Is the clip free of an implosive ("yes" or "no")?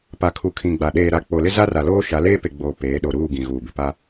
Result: no